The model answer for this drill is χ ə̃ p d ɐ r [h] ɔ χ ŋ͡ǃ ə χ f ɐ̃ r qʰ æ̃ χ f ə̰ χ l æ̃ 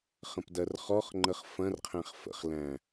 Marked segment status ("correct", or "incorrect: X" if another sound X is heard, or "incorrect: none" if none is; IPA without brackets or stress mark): incorrect: χ